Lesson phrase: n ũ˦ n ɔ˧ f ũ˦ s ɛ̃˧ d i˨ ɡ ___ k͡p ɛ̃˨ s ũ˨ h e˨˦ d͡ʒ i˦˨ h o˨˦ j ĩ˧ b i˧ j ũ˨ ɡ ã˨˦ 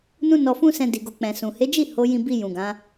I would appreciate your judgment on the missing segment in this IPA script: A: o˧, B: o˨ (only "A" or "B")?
B